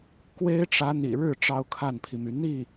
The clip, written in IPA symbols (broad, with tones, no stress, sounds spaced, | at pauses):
k w e˥ ɪ̯ ʈ͡ʂ ä˧˥ n̪ ḭ˨˩ ɻ ɻ̩˥˩ ʈ͡ʂ ɑ˥ ʊ̯ kʰ a˥˩ n pʰ i˩ m y˩ n̪ i˥˩